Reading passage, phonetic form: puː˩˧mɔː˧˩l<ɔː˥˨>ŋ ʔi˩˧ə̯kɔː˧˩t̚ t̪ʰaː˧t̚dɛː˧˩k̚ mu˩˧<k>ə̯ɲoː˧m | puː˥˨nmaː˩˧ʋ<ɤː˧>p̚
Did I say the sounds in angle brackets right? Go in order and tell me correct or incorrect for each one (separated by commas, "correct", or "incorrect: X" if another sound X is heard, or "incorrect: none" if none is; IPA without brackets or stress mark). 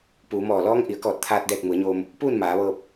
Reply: incorrect: ɔː˧˥, incorrect: none, correct